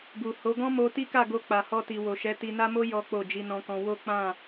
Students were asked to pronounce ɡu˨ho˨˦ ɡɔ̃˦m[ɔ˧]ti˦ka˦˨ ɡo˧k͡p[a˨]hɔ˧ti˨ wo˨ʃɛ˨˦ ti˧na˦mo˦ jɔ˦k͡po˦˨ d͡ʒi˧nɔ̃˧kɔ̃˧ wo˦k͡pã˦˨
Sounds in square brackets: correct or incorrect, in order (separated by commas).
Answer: incorrect, correct